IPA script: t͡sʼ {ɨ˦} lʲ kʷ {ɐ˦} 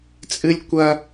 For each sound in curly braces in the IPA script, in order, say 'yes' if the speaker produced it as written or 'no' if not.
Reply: yes, yes

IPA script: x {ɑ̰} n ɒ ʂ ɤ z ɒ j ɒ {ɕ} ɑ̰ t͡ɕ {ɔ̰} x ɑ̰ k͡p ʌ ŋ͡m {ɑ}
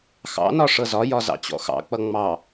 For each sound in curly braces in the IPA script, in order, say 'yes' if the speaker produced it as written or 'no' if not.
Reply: yes, no, yes, yes

